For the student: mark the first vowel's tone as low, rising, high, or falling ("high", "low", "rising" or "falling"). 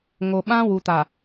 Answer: low